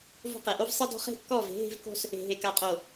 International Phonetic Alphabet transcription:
v o̤˦ q e˨ ʔ o˦ v sˤ e˦ d ɔ̤˦ χ e̤˦ kː ɔ˦˨ v e̤˨˦ ɦ e̤˦ v k o̤˦ s | e̤˨ ɦ e˨ k a˨˦ qʼ o˨

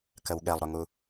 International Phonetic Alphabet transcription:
k ə w ɠ ɛ lˠ ɾ ʊ ŋ u

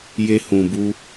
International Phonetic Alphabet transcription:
j e˧ h ũ˨ b u˧

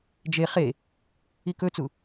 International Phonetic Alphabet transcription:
d͡ʒ e χ e | i k ɵ t͡s u

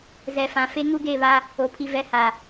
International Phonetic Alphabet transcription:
z ɛ˨ f ã˨ f e˦ ŋ u˦ ɡ e˦˨ β a˦ | o˨ pʰ i˨ v ɛ˨˦ h a˨

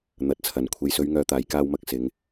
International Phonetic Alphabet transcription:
n̪ ɐ˨˥ t̚ t͡sʰ ɐ˨ n kʷʰ e˨ j s ɵ˨˧ ɥ ŋ œː˨˧ t̪ aː˨ j k aː˧ w m ɐ˧ k̚ s ɪ˨˧ ŋ

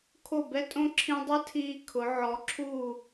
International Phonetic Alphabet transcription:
kʰ o˧˩ b ɛ˧ tʼ õ˧ ǁʰ ĩ˧ dˤ ɛ˥ tʰ iː˧ kʰ ʊ˩˧ ʕ ɔ˩˧ ǁʰ u˧˩

